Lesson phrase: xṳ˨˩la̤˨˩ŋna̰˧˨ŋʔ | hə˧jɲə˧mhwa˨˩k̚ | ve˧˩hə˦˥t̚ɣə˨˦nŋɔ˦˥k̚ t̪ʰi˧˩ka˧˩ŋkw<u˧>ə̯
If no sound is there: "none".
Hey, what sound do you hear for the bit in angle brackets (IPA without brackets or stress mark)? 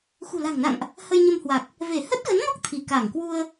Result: u˧